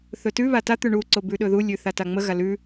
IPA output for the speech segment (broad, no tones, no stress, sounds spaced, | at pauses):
θ ɵ t ʉ β a t a t̪ ʉ ɳ u ǀ o b ʉ ɗ ɵ ð u lʲ ʉ θ a t a ŋ͡m ə ɣ a l ʉ